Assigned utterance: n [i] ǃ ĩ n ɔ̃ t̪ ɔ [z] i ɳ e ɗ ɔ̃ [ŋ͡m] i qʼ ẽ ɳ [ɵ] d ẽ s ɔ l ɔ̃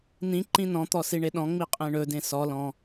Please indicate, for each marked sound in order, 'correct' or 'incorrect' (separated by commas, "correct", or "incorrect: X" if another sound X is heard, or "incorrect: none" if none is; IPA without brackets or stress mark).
incorrect: ĩ, incorrect: s, correct, correct